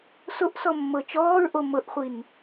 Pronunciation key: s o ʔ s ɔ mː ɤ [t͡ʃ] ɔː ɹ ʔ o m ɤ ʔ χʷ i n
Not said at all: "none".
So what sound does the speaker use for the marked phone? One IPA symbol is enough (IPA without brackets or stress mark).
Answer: t͡ʃ